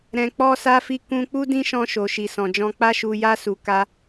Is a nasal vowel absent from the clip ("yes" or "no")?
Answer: no